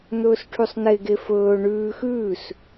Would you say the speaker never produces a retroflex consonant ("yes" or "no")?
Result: no